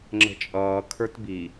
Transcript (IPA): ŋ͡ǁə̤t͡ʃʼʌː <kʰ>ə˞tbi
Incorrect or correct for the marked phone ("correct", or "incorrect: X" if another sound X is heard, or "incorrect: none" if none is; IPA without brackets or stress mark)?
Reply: correct